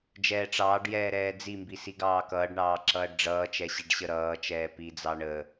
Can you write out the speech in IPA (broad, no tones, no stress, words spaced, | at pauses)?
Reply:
d͡ʒɛːʈ͡ʂɑːɖjɛː ɾɛːd͡zimbi siɡɑːkʌːɖɳɑː ǁʌːɖɖ͡ʐʌːt͡ʃɛ ɕiɖɕəɾʌːt͡ʃɛː pid͡zɑ ɳə